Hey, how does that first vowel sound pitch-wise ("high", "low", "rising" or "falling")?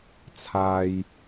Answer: low